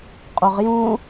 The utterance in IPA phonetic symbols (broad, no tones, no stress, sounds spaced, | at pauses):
qʼ o ʁ j ũ